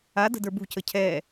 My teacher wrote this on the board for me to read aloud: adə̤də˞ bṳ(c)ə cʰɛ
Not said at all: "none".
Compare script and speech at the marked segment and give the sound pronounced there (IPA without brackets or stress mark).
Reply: c